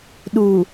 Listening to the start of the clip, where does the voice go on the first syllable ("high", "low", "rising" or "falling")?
low